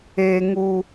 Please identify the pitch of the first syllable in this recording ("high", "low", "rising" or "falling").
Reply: high